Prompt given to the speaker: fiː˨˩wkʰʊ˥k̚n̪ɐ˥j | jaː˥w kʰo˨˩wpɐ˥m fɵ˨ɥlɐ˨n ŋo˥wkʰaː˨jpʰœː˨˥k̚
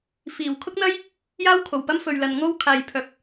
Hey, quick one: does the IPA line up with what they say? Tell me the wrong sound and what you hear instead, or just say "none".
none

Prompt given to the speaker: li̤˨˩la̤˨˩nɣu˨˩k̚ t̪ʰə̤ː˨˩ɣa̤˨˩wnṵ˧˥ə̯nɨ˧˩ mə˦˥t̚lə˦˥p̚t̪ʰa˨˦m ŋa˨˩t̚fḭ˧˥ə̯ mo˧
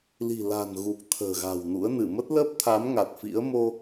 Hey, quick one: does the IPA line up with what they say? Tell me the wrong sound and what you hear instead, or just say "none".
none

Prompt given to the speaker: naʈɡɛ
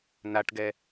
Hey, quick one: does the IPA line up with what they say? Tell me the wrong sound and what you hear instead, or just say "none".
none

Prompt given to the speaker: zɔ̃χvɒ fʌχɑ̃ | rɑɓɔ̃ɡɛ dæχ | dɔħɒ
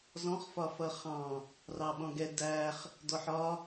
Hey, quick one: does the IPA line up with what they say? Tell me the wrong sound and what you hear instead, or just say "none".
v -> f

